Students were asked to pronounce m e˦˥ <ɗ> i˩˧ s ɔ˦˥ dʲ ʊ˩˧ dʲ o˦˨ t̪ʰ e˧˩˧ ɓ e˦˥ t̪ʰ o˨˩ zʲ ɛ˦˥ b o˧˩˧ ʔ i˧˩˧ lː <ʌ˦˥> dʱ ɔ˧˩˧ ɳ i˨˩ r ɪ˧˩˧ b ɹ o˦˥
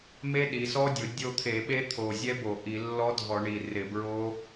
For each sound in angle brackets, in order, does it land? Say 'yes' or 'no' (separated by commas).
yes, no